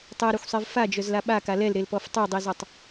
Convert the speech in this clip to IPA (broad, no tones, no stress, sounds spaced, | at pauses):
tˤ ɛ ɾ œ xʷ sˤ e v f a d͡ʒ œ z l a ɓ a k a l ɛ l ɾ e l p ɔ f tˤ o dˤ i z ɔ tˤ